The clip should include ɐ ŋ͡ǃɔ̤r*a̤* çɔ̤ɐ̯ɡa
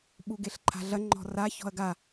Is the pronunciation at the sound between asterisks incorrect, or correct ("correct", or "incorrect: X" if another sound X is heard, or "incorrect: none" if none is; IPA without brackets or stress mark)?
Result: incorrect: a